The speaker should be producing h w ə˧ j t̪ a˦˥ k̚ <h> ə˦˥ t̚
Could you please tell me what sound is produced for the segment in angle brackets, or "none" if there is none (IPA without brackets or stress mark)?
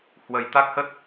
h